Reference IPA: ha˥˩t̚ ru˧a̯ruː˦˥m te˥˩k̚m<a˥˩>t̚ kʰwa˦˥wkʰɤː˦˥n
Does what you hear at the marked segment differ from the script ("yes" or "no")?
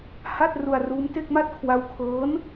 no